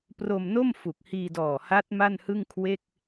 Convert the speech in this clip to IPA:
pro˧mno˥˩m fu˨˩k̚hiː˧dɔː˨˩ha˦˥t̚ ma˥˩nhɯ˥˩ŋkʰwe˥˩k̚

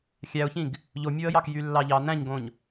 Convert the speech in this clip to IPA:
xʲæʊ̯çĩɡ | ʎomʲoə̯jɑk jylːɑʎɑ n̪æ̃ɲɡõɲ

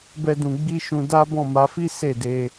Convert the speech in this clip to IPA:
bɛ˦dũ˧ ɡ͡bi˦ʃũ˧ da˦bɔ̃˦˨ma˧fi˦ se˦˨de˧

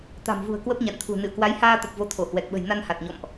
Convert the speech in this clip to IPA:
t̪a̤˨˩mvṳ˨˩ə̯ kwə˦˥p̚ɲa̰˧˨nt̪ʰṳ˨˩ nɨ̰˧˨ə̯kwa˨˦jhaː˧t̪ə˨˩p̚ vo˨˦t̪ʰo˧˩hwɛ˨˩k̚ɓə̤˨˩j na˧nha˨˩t̚ɲɔ̰˧˨mʔ

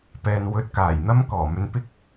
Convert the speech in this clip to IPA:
pɛː˨nwɵ˨˥t̚ kaː˨˩jn̪ɐ˥mkɔː˨˩mɵ˧n pɪ˥k̚

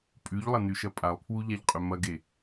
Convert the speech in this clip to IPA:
pʼʉʎlˠɐ nʉʃɐpʼalˠpʰwu ʎaʎqʼɵmɐɡe

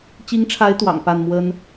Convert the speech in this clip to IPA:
t͡ɕi˧˥ŋʈ͡ʂʰa˧˥ɪ̯ t̪wɑ̰˨˩ŋ pa˥˩nmwə˥n

